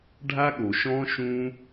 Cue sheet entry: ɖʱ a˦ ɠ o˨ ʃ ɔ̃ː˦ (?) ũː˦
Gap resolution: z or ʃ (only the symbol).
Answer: ʃ